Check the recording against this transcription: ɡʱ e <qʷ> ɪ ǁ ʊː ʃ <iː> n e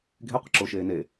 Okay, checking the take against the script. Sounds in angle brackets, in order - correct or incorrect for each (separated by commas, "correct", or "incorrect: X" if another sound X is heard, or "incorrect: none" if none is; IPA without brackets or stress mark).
correct, incorrect: eː